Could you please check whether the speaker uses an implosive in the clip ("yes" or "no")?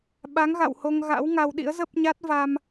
yes